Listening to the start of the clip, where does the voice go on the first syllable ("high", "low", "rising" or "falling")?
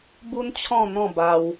high